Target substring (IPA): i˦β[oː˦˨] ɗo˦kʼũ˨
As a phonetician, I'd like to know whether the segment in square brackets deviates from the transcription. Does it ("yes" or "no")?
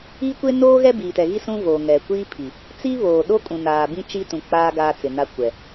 yes